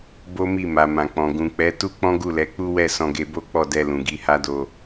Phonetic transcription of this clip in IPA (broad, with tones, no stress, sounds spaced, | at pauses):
b o˦ m i˦˨ m a˨ m ã˨ k͡p ɔ̃˨ ɡ ũ˨ k͡p ɛ˨˦ t u˦ k͡p ɔ̃˦ ɡ u˦˨ l ɛ˨˦ k͡p u˦ w ɛ˦˨ s ɔ̃˧ ɡ e˧ b o˦ k͡p ɔ˦˨ d ɛ˧ l ũ˨ ɡ i˧ h a˦ d o˧